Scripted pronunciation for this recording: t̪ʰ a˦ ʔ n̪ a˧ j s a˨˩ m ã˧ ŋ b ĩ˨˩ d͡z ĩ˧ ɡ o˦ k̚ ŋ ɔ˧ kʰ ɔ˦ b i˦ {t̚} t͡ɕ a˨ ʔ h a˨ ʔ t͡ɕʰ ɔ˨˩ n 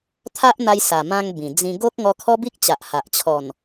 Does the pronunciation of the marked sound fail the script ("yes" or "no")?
yes